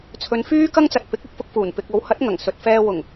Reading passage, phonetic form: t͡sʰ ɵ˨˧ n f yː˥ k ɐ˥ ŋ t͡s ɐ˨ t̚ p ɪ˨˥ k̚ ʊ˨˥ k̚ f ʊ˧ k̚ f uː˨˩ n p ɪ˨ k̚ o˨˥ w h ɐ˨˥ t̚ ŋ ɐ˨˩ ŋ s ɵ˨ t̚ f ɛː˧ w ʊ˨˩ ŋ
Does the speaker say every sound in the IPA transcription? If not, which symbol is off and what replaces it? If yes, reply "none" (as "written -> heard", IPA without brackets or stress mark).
none